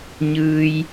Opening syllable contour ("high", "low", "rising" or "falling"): low